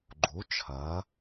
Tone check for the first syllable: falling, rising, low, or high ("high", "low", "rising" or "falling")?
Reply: rising